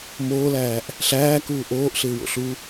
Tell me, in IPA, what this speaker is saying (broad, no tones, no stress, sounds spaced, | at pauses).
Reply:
m oː l æː ʔ | ɬ æː k uː ʔ oː ʔ ɬ ɪː w o̰ ɬ u